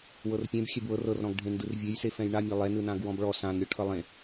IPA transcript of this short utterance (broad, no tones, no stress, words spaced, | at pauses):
wɤrpʲẽb xʲɛbwɤr ɤrɾɔ̃ɡ ɖʱẽndɯrvʲejse fɛ̃jɳamʲa lˠɛnɯnãɡ wɔ̃bɭɔ sãn ɾʲɔʈʰʌlˠẽ